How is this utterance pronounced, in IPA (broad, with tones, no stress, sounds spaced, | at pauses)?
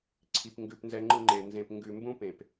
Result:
ǀʰ i˨ p ŋ ɡ ʉ˨ p n z ɛ˨ ŋ͡ǃ ɯ˨ ŋ͡ǃ e˨ n z ẽ˨ p ŋ ɡ ʉ˨ m b ũ˦ p ẽ˨ p